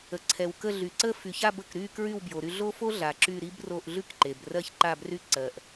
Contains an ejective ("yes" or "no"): no